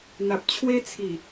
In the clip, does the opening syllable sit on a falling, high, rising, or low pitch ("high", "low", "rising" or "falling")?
low